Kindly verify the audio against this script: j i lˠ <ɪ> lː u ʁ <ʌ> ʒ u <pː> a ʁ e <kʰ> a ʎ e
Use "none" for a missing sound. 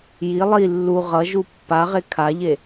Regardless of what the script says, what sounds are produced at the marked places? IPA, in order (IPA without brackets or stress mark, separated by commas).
i, ʌ, pː, kʰ